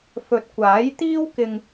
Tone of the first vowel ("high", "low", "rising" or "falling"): low